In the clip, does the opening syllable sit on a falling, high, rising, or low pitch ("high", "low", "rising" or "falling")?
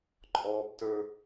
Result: high